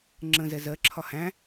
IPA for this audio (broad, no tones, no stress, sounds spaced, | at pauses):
ŋ͡ǁ ə̃ z ɛ z ɜ ǁʰ ɒ h æ̃